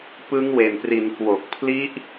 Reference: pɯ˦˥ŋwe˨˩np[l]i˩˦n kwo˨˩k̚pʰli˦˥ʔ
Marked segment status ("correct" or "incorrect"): incorrect